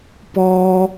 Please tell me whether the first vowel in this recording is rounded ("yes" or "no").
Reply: yes